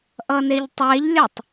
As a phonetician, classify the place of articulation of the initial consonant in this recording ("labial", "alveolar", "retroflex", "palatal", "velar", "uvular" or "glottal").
glottal